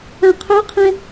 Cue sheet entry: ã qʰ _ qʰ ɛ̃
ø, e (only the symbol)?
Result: ø